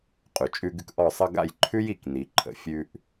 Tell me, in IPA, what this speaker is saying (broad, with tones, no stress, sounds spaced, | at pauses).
qʼ ʉ˩ t͡ʃʼ ʉ˧ ɡ ʉ˧ k ʔ ɔ˥˩ sˤ ʌ˥ ɡ a̰˥˩ j ǃʰ ʉ˥ j i˥˩ k n i˩˥ ǃʰ ə̰˩ fʲ ʉ˧ ʔ